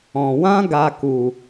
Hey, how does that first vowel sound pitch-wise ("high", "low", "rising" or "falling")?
low